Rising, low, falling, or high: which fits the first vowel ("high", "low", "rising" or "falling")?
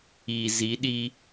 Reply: low